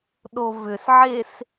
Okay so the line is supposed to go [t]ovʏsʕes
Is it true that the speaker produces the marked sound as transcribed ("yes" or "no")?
no